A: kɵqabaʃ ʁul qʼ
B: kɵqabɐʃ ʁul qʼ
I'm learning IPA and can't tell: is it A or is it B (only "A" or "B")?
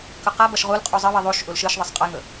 B